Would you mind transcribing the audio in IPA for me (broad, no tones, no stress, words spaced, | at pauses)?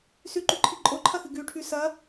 sʉǃʉǃʰi ǃʼoǃʰɐxɨ ɡʉʈʰʉ sɐ